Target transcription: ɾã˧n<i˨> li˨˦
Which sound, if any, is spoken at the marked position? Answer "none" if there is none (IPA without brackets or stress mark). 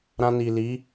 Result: i˨